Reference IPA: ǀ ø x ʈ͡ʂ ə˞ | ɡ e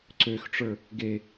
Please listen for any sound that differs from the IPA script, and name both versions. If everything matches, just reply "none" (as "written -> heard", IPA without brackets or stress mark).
none